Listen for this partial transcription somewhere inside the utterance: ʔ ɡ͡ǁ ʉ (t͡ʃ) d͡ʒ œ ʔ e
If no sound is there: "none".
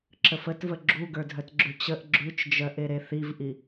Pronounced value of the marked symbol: t͡ʃ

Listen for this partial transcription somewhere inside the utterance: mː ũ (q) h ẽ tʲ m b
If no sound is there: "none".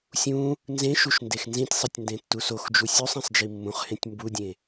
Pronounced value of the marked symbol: χ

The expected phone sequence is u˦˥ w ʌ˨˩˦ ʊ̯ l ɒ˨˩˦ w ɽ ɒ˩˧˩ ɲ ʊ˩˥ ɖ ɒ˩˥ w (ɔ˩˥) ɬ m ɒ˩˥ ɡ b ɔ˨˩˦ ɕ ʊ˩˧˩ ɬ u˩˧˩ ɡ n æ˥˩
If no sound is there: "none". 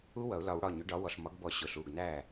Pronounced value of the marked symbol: ɔ˩˧˩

